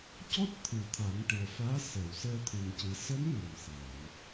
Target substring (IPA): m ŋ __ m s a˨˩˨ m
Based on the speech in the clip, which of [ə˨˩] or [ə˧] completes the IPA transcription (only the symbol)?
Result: ə˨˩